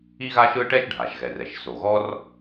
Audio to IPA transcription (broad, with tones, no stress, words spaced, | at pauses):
i˥ɣa˥ʃɯ˥ʈɛ˥ʃ ɖʱa˩ʃɣɛ˩rɛ˩ʃ so˩ɣɔ˥r